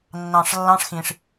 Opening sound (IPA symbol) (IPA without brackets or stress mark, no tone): nː